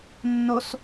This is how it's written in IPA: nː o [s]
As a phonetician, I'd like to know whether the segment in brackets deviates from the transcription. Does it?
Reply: no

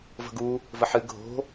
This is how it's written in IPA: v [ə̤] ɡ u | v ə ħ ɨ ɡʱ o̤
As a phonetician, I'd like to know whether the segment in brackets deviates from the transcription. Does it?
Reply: no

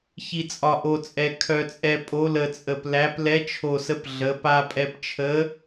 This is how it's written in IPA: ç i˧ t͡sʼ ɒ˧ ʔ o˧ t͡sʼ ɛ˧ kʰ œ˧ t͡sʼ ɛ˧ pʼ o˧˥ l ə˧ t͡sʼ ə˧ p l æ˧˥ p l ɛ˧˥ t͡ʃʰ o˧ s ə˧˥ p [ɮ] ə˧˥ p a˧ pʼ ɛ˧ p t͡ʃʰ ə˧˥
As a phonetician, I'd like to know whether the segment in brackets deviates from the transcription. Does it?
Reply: no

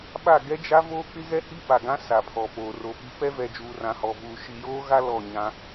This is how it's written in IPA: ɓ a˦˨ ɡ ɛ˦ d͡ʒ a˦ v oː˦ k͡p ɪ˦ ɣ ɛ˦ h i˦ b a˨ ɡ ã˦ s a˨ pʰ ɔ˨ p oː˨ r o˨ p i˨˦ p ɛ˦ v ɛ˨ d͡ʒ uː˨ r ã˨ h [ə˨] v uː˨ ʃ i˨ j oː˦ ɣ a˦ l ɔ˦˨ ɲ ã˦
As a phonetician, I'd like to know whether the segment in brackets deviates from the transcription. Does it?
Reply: yes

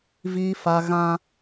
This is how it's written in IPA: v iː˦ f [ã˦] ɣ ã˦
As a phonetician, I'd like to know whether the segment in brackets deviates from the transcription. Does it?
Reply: yes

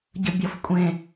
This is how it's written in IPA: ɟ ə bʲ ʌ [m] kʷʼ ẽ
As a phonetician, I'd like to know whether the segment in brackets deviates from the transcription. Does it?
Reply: yes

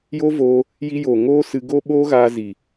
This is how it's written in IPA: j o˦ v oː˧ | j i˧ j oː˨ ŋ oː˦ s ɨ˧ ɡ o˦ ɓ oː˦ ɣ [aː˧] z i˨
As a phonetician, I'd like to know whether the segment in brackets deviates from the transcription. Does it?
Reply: no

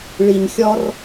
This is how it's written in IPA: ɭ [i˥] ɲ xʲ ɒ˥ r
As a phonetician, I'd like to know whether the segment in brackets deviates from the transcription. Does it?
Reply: yes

